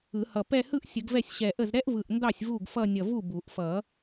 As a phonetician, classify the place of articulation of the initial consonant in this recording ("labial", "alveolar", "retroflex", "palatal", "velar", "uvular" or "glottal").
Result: glottal